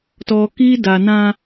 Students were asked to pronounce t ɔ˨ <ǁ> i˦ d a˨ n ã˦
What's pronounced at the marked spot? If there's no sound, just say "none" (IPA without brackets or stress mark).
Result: k